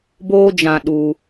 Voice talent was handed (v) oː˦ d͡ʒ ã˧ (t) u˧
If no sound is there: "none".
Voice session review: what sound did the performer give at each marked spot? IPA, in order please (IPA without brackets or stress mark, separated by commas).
b, ɗ